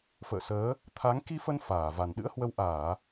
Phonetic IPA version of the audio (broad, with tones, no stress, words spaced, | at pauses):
fə̰ː˧˨səː˨˦ | t̪ʰa˨˦ŋ ki˧fə˧n faː˧˩va˨˩n ɗɨ̰˧˥ə̯hwə˧w ʔaː˧˩˨